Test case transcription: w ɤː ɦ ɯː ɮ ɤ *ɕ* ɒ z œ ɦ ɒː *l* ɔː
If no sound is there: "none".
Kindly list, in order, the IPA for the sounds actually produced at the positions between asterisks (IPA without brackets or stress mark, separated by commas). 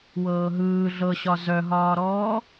ɕ, ɾ